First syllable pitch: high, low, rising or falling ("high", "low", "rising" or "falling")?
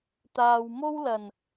low